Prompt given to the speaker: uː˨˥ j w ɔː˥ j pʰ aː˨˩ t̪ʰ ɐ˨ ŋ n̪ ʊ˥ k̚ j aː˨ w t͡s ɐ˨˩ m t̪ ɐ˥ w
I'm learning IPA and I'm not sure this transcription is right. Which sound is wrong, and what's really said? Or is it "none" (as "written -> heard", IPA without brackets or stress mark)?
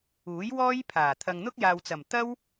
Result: none